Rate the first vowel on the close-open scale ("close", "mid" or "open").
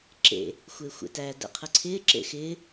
mid